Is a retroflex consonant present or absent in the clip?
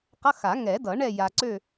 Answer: present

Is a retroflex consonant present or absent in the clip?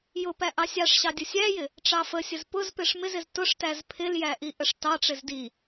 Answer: present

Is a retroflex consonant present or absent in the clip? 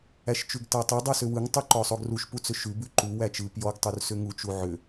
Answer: absent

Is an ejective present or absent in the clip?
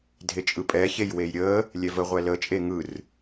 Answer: present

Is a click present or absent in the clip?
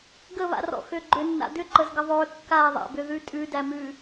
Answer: present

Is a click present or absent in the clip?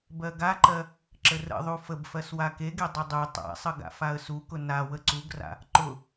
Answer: present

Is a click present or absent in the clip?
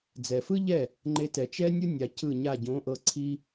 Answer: present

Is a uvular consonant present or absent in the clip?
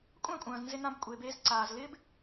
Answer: absent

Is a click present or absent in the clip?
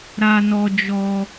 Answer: absent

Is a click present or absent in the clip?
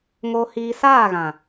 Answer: absent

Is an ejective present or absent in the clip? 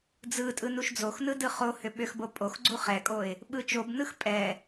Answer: present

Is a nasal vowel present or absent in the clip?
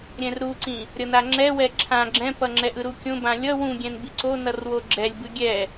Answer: present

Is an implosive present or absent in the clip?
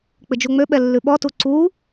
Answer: present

